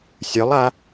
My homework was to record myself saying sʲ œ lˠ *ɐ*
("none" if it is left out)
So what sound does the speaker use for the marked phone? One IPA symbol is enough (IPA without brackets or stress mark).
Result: a